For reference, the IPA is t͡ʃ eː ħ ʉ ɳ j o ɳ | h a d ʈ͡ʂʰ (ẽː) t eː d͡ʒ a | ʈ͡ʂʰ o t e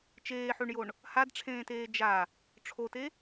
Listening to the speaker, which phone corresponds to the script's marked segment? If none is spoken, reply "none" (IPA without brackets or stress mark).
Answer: ẽː